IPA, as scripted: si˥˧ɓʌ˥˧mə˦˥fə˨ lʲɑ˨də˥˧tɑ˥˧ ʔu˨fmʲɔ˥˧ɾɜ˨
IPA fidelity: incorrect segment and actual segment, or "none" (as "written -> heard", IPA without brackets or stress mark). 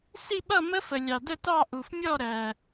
none